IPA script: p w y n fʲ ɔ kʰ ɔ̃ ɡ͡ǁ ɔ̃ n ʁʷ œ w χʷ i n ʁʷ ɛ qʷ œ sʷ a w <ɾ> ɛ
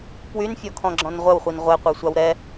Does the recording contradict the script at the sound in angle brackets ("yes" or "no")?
no